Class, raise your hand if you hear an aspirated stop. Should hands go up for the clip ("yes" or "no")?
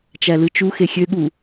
no